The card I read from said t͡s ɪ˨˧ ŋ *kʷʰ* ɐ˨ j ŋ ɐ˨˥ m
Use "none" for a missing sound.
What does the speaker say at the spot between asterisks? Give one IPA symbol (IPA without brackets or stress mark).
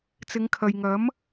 kʰ